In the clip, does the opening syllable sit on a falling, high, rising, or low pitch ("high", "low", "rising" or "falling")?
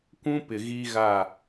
high